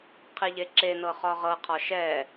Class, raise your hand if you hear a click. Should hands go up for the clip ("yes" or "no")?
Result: yes